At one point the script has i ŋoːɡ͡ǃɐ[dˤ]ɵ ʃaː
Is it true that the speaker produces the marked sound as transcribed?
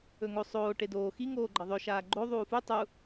no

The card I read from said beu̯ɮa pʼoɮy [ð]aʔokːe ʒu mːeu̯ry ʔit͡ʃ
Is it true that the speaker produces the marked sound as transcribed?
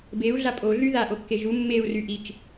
yes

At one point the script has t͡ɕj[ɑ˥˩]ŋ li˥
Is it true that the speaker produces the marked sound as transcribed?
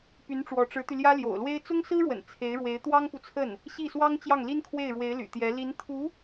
yes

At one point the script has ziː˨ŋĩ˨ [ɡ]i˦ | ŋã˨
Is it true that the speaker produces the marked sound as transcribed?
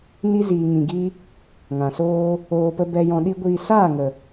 yes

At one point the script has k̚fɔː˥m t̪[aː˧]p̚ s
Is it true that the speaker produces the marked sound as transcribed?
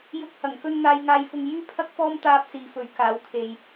yes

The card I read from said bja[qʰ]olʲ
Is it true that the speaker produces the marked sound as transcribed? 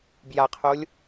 yes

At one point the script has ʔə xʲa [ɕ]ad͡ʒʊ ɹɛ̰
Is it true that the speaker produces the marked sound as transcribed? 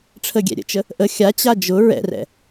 no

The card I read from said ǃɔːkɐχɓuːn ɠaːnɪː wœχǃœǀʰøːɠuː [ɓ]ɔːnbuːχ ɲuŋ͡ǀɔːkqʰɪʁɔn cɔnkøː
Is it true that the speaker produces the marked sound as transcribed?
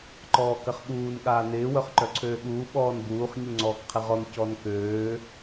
yes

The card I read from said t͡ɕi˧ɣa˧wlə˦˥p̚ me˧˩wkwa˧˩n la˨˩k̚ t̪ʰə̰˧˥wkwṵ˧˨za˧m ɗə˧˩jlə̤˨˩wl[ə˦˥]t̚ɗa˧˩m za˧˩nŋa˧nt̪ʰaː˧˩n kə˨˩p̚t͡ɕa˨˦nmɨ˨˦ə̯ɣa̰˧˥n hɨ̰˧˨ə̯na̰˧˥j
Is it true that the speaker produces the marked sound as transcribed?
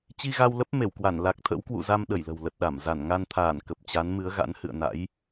no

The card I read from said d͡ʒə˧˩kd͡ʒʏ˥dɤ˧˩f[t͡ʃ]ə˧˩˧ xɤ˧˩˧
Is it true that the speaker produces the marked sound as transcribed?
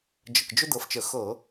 yes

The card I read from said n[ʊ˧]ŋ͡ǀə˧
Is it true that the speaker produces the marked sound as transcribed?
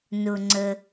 yes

